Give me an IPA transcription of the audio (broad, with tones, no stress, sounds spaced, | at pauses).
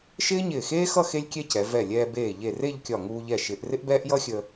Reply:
ʃ ɪː˥ ɲ ɪː˧˩ x eː˥ x ʌ˥˧ x e˥ lʲ kʲ ɛ˥ c ɛ˩˧ v ɛ˧˩ lʲ ɛː˧ b eː˧˩ ʎ e˧˩ r e˥˧ ʎ kʲ ɒ˧˩ ŋ uː˧ ʎ ɛ˧˩ ʃ ɪː˩˧ ʔ r ɪ˥ ʔ b ɛː˥ ʔ j ʌ˥ xʲ ə˧